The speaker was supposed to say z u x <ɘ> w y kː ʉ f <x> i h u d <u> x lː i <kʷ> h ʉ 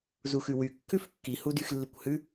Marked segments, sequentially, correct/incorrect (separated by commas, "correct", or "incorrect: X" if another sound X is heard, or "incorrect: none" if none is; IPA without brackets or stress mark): incorrect: ʉ, incorrect: kː, incorrect: y, correct